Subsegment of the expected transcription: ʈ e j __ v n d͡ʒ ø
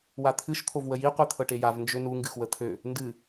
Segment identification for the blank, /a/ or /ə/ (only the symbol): a